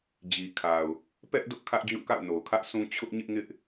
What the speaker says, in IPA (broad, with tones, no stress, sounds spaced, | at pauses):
d͡ʑ i˨ kʰ a˨ ʊ̯ | p ɛ˦ ʔ d ʊ˦ ʔ kʰ ä˦ ʔ d͡ʑ ũ˦˨ k a̰˦˨ ʊ̯ n o˨ ʊ̯ kʰ ä˦ ʔ s ũ˦ t͡ɕʰ ʊ˦ ʔ ɲ ɪ˦ ʔ ŋ ɪ˦ ʔ